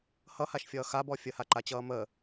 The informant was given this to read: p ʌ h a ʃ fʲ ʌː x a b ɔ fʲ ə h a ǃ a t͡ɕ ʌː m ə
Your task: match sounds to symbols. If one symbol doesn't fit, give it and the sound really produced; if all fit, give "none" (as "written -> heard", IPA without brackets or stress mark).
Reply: p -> h